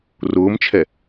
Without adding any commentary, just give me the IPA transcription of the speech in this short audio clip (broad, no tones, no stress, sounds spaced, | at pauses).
r ʊː m t͡ʃʰ ɛ